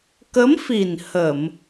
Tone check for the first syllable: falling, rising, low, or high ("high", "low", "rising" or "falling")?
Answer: rising